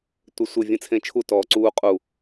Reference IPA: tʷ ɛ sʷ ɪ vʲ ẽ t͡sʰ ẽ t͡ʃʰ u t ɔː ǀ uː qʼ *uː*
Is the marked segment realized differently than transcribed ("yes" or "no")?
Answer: yes